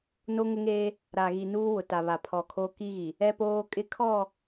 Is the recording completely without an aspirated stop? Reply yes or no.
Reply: no